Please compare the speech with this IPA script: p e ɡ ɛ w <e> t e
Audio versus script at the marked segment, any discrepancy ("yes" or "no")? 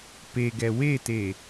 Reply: no